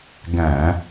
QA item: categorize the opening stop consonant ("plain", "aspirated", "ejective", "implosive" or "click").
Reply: plain